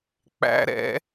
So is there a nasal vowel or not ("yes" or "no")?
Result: no